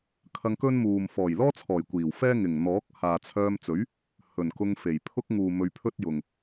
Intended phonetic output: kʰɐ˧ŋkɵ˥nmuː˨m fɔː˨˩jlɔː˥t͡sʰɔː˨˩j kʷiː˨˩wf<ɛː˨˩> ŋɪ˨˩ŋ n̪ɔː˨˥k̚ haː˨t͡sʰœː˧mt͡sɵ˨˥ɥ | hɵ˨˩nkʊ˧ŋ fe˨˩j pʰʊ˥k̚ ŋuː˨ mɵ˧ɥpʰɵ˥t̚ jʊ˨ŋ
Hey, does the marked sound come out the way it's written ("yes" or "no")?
no